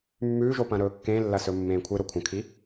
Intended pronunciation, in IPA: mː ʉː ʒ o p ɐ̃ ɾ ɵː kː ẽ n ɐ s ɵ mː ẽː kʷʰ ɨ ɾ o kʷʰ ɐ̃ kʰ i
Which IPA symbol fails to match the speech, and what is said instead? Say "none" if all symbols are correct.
n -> lː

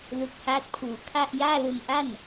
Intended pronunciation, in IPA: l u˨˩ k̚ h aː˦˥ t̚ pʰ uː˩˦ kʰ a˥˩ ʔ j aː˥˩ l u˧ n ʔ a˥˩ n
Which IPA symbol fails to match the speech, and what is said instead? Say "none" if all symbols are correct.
none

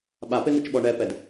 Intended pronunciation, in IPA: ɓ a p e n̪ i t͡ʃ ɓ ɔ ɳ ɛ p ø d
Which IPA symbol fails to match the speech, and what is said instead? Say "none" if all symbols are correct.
ø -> ɛ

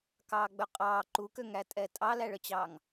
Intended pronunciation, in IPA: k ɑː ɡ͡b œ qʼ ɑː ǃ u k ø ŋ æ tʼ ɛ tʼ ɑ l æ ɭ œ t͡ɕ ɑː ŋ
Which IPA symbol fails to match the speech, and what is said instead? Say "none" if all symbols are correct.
none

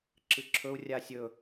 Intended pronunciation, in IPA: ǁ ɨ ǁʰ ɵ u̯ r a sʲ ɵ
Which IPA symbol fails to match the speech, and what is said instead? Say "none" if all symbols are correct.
r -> rʲ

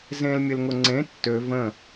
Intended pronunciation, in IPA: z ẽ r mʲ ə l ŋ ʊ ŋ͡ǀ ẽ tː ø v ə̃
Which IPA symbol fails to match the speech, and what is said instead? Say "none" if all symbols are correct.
r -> l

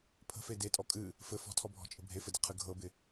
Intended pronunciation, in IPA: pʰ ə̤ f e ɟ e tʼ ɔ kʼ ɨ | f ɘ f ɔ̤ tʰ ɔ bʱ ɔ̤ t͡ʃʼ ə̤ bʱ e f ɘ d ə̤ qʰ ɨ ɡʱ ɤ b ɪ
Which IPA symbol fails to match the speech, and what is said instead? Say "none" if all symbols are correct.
ɟ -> d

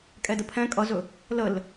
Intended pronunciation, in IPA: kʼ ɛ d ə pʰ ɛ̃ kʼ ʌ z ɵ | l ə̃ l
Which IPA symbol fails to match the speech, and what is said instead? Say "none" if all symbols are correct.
ə̃ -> ə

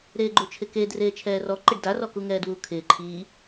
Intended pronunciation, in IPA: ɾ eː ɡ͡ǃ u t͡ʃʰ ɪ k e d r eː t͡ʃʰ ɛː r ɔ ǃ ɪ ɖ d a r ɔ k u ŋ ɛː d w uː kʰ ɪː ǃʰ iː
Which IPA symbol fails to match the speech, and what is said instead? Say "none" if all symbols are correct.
none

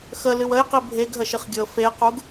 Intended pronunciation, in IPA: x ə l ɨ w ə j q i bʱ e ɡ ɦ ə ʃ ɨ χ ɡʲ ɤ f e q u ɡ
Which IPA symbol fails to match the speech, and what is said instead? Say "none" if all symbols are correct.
none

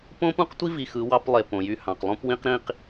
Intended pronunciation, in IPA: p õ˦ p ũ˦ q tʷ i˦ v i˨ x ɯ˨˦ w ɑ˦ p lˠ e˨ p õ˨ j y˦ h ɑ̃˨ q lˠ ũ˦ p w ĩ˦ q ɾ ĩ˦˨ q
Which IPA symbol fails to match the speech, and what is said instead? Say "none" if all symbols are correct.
none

